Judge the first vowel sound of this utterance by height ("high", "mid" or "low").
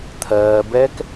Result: mid